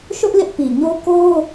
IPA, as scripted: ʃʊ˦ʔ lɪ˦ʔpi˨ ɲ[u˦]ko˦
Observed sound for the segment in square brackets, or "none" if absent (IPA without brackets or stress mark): o˦